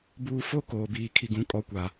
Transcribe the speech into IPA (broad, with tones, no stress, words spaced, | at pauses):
buː˨ fo˦koː˨biː˨ kʰi˨ɡũ˨kʼɔ˨kʷa˨